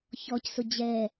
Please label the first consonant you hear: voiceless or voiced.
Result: voiceless